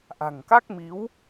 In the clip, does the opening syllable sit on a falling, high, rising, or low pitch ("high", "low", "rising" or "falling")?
low